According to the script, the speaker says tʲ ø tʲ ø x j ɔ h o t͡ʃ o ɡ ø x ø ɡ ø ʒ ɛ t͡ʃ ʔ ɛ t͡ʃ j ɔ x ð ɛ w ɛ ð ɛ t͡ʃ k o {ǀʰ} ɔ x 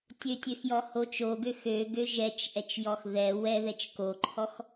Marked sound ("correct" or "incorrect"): incorrect